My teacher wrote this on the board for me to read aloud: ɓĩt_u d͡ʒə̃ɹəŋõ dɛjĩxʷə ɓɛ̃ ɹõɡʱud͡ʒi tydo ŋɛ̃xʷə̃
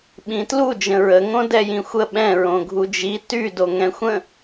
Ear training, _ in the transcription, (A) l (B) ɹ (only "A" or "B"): A